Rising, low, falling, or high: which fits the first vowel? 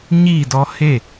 falling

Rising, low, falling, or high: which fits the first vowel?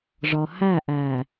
low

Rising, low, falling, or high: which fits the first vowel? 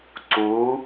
rising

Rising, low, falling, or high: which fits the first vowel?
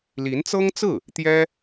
rising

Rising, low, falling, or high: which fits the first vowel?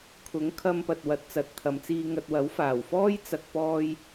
rising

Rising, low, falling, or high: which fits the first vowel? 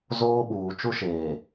high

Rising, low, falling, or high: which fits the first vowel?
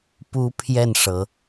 high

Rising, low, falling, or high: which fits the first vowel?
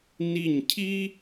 falling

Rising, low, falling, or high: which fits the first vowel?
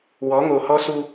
rising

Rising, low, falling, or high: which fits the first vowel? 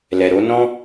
low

